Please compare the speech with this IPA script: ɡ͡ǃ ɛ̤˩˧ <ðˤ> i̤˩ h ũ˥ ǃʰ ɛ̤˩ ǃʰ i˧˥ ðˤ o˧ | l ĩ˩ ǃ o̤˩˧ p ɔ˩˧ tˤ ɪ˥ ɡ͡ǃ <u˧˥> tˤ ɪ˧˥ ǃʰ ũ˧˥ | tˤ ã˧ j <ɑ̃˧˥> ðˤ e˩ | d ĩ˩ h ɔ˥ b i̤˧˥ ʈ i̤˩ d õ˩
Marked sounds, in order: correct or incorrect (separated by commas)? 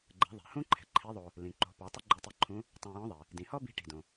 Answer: correct, incorrect, incorrect